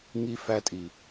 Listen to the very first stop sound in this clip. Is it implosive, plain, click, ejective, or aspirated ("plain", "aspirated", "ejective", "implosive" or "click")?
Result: ejective